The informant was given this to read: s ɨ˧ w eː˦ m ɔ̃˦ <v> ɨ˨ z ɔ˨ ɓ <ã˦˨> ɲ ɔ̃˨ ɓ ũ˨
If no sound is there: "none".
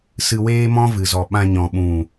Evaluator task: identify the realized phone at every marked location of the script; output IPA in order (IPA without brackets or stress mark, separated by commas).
v, ã˧